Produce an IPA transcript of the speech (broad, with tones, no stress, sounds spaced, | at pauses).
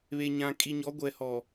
β e˨ ɲ ã˨ kʼ i˨ ɲ ɔ˨˦ ɡʷ ɛ˨ h ɔ˨